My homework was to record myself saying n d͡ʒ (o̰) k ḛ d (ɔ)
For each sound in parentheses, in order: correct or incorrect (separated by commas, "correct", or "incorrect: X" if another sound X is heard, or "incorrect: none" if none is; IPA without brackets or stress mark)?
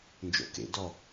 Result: correct, correct